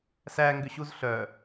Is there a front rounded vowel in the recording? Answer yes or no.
yes